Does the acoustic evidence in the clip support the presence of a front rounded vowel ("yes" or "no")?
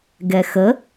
no